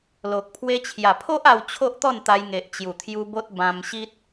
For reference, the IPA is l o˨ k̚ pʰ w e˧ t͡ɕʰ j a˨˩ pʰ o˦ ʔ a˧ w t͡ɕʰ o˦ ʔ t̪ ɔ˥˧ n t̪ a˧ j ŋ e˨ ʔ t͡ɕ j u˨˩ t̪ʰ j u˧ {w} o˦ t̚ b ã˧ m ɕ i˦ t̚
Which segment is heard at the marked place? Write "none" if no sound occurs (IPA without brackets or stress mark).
b